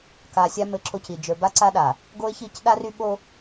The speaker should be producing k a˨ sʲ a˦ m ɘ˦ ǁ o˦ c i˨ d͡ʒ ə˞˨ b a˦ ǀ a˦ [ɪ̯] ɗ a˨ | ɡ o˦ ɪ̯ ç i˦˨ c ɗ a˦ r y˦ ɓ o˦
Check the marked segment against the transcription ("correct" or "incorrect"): incorrect